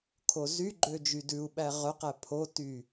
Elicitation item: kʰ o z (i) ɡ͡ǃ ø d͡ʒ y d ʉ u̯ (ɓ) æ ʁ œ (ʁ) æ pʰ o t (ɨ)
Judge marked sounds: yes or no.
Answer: no, yes, no, no

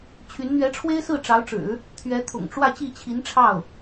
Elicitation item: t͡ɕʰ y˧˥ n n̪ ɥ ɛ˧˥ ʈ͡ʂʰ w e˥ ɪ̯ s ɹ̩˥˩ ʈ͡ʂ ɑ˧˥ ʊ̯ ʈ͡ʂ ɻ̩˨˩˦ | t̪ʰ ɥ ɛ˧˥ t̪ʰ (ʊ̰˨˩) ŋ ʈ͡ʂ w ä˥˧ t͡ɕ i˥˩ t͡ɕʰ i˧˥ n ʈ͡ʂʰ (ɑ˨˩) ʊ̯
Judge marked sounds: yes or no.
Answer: yes, no

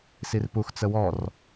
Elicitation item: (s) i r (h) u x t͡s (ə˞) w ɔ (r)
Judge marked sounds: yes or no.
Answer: yes, no, no, yes

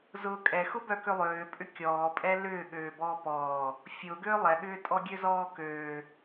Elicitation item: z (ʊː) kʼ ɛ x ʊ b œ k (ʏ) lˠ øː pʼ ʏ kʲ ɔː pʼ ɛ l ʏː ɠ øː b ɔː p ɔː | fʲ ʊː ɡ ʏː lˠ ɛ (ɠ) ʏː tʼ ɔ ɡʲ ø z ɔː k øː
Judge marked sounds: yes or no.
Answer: yes, yes, yes

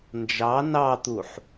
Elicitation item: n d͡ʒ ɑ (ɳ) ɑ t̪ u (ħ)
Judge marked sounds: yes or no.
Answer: no, yes

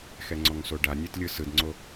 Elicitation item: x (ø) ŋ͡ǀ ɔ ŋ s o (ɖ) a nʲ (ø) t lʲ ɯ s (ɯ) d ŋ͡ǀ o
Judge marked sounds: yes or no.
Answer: no, yes, no, yes

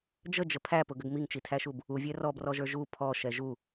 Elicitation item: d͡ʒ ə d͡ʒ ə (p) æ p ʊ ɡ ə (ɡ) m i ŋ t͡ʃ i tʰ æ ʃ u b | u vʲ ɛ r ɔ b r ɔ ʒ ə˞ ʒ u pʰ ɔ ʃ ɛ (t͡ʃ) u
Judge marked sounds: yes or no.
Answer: no, yes, no

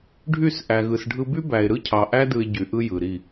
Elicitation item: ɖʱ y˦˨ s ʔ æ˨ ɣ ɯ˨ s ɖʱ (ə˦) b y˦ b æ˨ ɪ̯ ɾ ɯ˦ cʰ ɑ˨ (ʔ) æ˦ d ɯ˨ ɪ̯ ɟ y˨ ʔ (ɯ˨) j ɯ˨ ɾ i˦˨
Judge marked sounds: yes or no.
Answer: no, yes, no

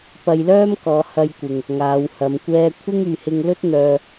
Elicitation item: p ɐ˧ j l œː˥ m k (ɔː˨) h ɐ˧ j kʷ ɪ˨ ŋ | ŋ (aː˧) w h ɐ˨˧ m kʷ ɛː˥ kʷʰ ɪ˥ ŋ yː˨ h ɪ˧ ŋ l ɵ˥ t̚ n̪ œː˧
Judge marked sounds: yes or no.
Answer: no, no

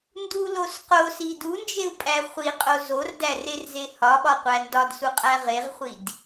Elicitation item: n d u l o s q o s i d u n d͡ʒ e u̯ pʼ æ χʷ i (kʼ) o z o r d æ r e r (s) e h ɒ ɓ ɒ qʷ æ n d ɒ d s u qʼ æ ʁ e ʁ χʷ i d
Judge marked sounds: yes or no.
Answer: no, no

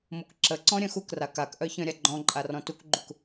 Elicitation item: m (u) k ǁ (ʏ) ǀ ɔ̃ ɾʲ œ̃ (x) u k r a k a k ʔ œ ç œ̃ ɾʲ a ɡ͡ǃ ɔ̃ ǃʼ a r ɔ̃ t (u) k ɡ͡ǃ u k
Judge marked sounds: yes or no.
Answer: yes, no, yes, yes

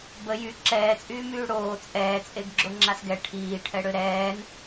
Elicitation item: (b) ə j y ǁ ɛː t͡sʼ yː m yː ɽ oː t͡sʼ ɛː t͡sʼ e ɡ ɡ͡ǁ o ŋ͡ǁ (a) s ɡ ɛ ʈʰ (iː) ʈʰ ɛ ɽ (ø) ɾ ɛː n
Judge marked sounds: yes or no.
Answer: yes, yes, yes, yes

